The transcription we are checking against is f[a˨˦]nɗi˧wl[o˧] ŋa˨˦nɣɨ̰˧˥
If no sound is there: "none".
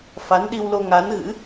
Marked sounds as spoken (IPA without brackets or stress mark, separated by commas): a˨˦, o˧